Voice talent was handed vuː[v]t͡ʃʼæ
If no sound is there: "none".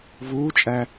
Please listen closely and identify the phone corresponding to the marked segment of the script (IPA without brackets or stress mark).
none